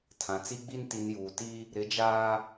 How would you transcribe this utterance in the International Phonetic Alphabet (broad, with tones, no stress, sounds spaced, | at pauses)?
tʰ ã˨ t͡s i˦ ɡ͡b i˦ n t i˨ n j uː˨ t i˦ | ɾ ɪ˨˦ d͡ʒ aː˦